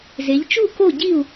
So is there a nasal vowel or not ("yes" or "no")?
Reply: no